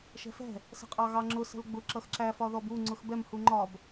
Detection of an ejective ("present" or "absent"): present